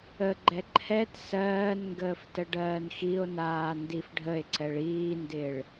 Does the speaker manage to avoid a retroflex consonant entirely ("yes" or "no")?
no